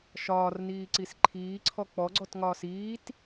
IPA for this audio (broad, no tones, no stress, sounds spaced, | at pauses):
ʃ ɒː r n iː ǀ i s ǃʰ iː ǀʰ ɔ k͡p ɔ ɡ͡ǀ ɔ t ŋ ɒː s iː t